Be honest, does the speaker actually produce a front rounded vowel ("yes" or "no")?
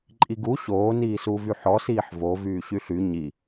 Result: yes